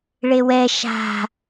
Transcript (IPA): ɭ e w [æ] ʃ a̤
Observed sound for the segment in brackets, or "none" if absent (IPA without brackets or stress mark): ɛ